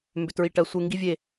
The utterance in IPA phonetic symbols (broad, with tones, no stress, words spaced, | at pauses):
mbʏ˨tɹi˨ ʈɜ˨sʷe˧ŋɡi˦vʲe˦˨